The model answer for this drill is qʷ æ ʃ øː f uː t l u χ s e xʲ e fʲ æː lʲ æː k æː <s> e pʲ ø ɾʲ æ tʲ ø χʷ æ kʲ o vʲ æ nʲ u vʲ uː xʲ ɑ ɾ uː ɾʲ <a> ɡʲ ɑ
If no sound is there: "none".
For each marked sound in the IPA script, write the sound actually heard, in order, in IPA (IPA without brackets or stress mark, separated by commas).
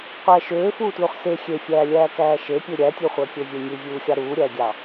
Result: ʃ, æ